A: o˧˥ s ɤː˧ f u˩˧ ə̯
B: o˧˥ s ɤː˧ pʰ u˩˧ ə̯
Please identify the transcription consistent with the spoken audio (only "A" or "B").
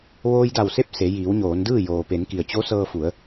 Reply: A